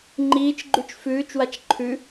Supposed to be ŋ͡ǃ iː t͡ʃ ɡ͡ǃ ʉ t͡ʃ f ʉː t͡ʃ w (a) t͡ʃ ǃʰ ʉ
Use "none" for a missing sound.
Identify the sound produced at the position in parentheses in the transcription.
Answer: a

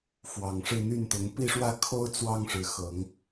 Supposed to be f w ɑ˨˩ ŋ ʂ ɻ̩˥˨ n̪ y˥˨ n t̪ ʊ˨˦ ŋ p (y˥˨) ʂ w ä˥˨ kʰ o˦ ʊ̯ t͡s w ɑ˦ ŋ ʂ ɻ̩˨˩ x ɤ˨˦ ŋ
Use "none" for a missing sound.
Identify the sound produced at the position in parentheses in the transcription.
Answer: i˥˨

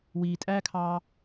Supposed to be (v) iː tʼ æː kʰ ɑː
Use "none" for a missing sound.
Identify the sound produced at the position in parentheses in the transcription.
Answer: w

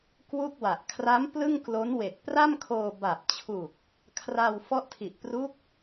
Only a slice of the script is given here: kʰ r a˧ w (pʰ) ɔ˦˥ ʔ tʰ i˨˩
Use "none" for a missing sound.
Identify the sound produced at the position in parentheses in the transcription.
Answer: f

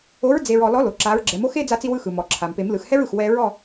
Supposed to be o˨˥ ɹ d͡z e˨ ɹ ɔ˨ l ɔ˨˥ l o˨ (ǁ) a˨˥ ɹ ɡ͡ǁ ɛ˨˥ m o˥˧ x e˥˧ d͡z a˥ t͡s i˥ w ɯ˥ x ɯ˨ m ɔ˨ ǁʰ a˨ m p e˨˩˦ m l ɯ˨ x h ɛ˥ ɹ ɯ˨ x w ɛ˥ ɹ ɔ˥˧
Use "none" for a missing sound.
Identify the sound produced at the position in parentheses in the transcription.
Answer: ǁ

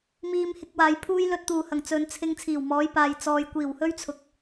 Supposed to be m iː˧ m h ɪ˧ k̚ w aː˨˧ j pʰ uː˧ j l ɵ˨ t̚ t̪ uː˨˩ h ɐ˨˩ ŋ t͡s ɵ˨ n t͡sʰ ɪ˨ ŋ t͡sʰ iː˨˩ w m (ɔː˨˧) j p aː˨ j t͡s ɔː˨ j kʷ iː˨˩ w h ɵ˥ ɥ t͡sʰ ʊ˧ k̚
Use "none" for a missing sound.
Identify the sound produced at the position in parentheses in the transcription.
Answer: ɔː˨˧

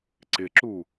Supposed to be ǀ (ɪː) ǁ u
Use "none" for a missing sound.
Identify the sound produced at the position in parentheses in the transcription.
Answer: ɪ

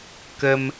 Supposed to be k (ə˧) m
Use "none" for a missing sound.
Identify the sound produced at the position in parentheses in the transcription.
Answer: ə˧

